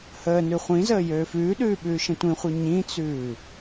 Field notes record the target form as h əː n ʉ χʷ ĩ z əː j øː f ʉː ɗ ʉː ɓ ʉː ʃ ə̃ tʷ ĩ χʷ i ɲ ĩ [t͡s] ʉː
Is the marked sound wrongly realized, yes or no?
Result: no